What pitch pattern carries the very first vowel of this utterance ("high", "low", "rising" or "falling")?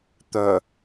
low